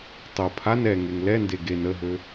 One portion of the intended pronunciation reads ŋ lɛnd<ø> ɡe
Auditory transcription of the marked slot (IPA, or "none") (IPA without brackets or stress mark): e